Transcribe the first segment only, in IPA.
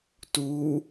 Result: t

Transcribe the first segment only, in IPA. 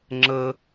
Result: ŋ͡ǁ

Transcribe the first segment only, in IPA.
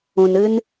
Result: ũ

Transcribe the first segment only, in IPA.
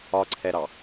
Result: ɒ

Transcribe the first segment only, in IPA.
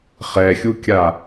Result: χ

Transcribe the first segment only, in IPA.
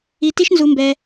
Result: i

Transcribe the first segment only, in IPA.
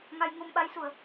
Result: ŋ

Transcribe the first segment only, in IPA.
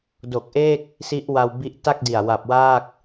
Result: d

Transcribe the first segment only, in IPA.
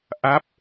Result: ʔ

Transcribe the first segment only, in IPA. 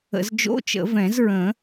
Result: ə̰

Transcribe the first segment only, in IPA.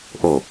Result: ʔ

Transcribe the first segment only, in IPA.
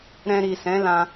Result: ɾ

